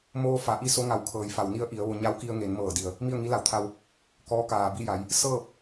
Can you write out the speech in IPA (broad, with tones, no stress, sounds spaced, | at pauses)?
m oː˧ f a˩˧ ʔ i˧ s o˧˥ ŋ a˧˩ w kʰ ɤː˩ j f a˩ w n i˧ ə̯ ʔ i˩˧ ə̯ ʋ o˧ ɲ a˧˥ w k i˧ ə̯ ŋ e˩˧ n m ɤː˧˩ d i˩ ə̯ | m i˥˨ ə̯ ŋ i˧˥ l a˧˩ w t̪ʰ a˧ w | k ɔː˧˥ k aː˩ b i˥˨ j a˩˧ j | s ɤː˥˨ p̚